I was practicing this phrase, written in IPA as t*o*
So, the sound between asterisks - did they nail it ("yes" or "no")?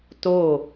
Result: yes